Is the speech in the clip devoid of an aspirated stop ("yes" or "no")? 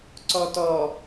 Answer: yes